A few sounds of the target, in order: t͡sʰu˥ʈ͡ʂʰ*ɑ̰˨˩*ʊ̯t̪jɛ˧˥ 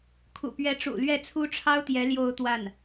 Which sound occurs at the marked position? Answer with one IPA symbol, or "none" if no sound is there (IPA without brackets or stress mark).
ɑ˥